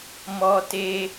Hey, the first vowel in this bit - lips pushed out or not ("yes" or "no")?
yes